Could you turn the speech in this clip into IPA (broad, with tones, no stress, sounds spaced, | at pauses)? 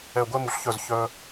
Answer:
ɛ˨˩ ɡʷ ɛ˧ m u˩˧ ɬ ç œ˨˩ z ç œ˧